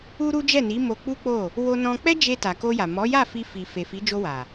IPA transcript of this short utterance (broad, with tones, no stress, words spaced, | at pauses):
u˦ɾu˦ d͡ʒɛ˦˨ni˨˦ mo˧k͡pu˦k͡po˦˨ | wo˧nɔ̃˧k͡pɛ˦ d͡ʒe˧ta˨ ko˧ja˨ mɔ˨˦ja˦˨fi˧ fi˨fe˨ fi˨˦d͡ʒo˧wa˨